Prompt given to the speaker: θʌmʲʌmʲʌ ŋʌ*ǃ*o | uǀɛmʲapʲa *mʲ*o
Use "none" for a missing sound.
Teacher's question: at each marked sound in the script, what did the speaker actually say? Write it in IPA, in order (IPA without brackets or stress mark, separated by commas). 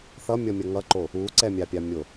ǃ, mʲ